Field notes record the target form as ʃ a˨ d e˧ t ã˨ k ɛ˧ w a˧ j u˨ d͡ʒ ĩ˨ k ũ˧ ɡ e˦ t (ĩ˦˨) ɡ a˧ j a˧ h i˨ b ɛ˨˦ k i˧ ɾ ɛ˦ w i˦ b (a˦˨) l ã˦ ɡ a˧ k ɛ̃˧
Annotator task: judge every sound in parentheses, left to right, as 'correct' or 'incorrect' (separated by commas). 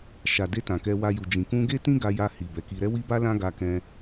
incorrect, incorrect